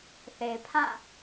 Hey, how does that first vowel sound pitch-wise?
low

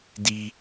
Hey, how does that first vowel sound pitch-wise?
high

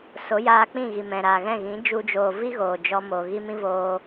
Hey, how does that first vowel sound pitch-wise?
rising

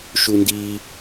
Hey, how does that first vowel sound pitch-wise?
high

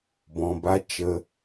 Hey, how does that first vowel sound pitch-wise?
low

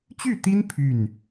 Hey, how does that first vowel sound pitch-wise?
falling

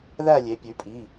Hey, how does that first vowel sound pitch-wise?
falling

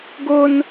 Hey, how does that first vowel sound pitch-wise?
high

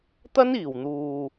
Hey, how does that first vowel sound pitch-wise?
high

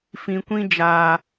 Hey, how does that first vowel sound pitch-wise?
low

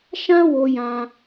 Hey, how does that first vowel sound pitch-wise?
high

